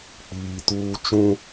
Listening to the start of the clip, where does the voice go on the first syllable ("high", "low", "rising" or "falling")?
low